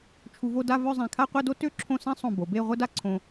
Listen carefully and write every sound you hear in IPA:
t͡ʃʰ u˧ v o˥˧ d a˥˧ v œ˥˧ zˤ ɛ̃˧˩ kʰ a˥˧ qʷ ɛ˥˧ d o˥ t ø˥˧ ǁʰ õ˥˧ s ɛ̃˥ sˤ õ˧˩ b o˩˧ b e˥˧ ʁʷ ə˥ d a˥ ǀʰ õ˧

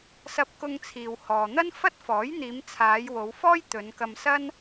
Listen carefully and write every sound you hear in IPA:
s ɐ˧ p̚ k ʊ˧ ŋ t͡sʰ iː˨ w h ɔː˨ n̪ ɐ˥ n f ɐ˥ t̚ f ɔː˨˥ j n̪ iː˨˧ m t͡sʰ aː˨˧ j w o˨˧ w f ɔː˥ j t̪ ɵ˨˧ n k ɐ˧ m s ɐ˥ n

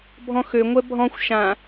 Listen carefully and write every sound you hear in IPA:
bʱ ɔ̃ x ø ŋʷ ɛ bʱ ɔ̃ xʷ ʃ ã

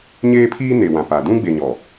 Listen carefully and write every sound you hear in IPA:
ɲ eː˦ pʰ iː˦ n e˨ w ã˨ p a˨ d ũ˦ ɡ͡b e˨ ɲ ɔ˨

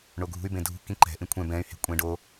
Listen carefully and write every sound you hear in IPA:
ɳ o ɡʱ ṳ y̯ b ẽ dʱ ṳ k ĩ ǃ ɛ̤ ʔ ĩ kʷʰ ɛ̃ b ɛ̃ y̯ h e̤ kʷʼ ẽ ɖ o

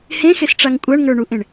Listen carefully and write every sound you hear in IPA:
h ẽ x e s ʈ͡ʂ a ŋ kʷʼ a ɳ ŋ ə˞ ɳ u ʔ ẽ ɳ

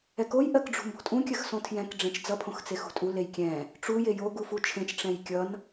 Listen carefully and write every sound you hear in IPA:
ɛ k o j ʔ ɜ k ɖ͡ʐ ṳ m b o̤ tʼ ũ kʲ ɜ x s õ tʰ j ɛ̃ k ɖ͡ʐ ẽ t͡ʃ d͡z ʌ pʰ õ x t͡s e x ṳ tʼ u l e j kʲ ɛ̃ | ʈ͡ʂ u j e j o ɡ u f u t͡ʃʰ ẽ t͡ʃ ʈ͡ʂ ɛ̃ j kʲ ʌ n

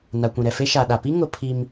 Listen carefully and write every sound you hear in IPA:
n a˨ kʷ ĩ˨ ɾ ɛ˨ f e˦ ʃ a˨ ɗ a˨ p i˦ ŋ ʊ˦ pʰ i˦ m

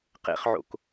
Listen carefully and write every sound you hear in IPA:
q ḛ χ ʕ o̰ k

